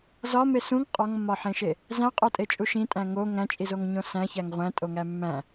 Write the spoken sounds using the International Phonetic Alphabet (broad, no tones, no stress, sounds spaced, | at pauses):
z ɒ m e s ũ ŋ qʼ ɒ ŋ mː ɒ ħ ẽ ʃ e | z æ̃ qʼ o tʼ e t͡ʃʼ u ʃ ĩ tʼ æ̃ ŋ o ŋ æ̃ t͡ʃʼ i z o ŋ ɲ õ s æ̃ ç æ ŋ ʁʷ æ̃ tʼ o ŋ æ mː æ̃